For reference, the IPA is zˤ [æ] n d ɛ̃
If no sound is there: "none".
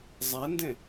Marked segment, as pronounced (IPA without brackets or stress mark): æ